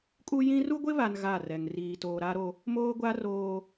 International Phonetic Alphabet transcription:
kʼu˦ jĩ˦ ru˦ɡʷɪ˦βa˨n ɣa˦˨rɛ˨ŋ riː˨toː˨ɾa˦ɾo˦ | moː˦ɡʷa˦ roː˦

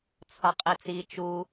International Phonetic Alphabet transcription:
t͡sʰɒqʼit͡si t͡ʃu

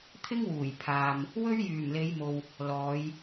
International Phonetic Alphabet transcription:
t̪ʰɪ˥ŋwuː˨˩jpʰaː˨m | wɵ˥ɥjyː˨˩mle˨˧jmo˨w | lɔː˨˧j

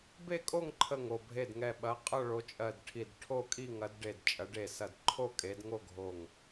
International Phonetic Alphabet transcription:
be˥˧kʼo˥˧ŋǃʰə˧˩ŋ o˧˩bʱe˧˩dŋɛ˧˩ɓɐ˨˦ qʼʌ˥˧ɭo˨˦t͡ʃʼɜ˧˩dʈʰi˧˩d ʈʰo˥˧kʼi˥˧ŋɐ˨˦dɖe˧˩d t͡ʃʼɐ˨˦ɖe˧˩sɐ˧˩d ǃʰo˥˧kʼe˨˦dŋo˥˧ɡʱo˧˩ŋ

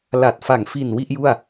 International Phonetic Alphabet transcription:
la˨˩t̚fa˨˩ŋfi˨˩n wi˥˩ʔju˥˩a̯

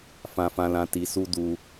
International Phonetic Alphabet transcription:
fã˧fã˧lã˧ ti˧su˦ du˦

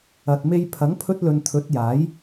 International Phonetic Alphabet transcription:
ɐ˨t̚me˧j pʰɐ˨˥ŋpʰɵ˧t̚lɵ˨n t̪ʰɵ˨˥t̚jaː˨˥j

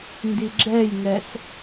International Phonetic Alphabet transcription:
ndiɡ͡ǁɛjŋɛs

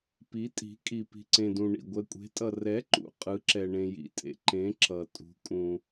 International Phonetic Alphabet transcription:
pi˨˥tʼi̤˨˥ kʼi˨pi̤˨ǀẽ˨dũ˨ ɳḭ˨ ɡʷɛ˨kʷʼe̤˨˥tʼʌ˨ rɛ˨˥ǃṵ˨ qʼɯ˨˥ǁɛ˨ ɳẽ˨jḭ˨tʼḛ˨ǃẽ˨˥ ǁʌ˨tʼṳ˨˥ kʼũ˨

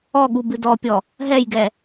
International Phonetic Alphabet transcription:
ɔɠu bɨdɔpʲɔ | ɦɛjɡɛ

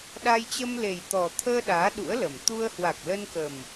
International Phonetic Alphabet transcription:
ɗa˧jt͡ɕə˧mle˨˩jt̪ɔ˨˩ t̪ʰəː˧ ɗaː˨˦ɗṵ˧˥ə̯lə˨˩m t̪u˧ə̯ hwa˨˩k̚lə˧nkə˨˩m

